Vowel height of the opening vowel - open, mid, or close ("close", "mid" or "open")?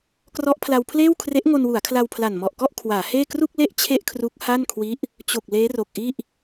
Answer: mid